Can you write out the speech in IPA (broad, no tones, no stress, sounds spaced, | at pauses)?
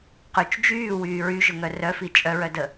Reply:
q y t͡ʃ d͡ʒ yː w yː ɹ y ʒ ʊ ŋ œ r œ f i t͡ʃʼ œ ɹ œ d ə